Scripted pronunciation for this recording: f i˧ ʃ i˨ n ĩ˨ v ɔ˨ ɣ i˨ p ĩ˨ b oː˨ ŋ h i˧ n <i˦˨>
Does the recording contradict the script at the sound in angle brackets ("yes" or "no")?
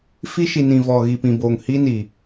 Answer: yes